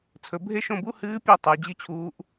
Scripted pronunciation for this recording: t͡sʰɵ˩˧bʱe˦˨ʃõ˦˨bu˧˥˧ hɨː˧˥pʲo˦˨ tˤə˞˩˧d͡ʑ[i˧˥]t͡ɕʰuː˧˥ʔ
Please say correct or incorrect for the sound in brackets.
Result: incorrect